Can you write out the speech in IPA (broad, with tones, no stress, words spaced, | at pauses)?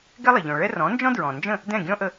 ɡɛ˥lˠɛ˩ʎɔ̃˩ɭɛ˥ rɔ̃˩˥nd͡ʒɔ̃˥dɹɔ̃˩nd͡ʒə̃˥˩ | dɛ̃˥˩ɡʲɔ̃˥ʔə˧